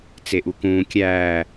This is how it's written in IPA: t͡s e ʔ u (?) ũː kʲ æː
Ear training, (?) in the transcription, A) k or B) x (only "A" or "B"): A